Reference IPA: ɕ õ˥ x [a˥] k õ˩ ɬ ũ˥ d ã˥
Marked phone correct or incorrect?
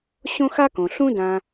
correct